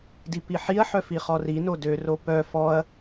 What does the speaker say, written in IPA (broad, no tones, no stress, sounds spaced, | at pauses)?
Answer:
d i p i ħ i ɐ̯ ħ œ f i χ ɔ r i n o d ø r o p œ f ɔ ɐ̯